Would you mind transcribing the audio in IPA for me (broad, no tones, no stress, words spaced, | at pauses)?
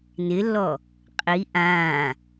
nɪlːɔ | qʼi ʔãː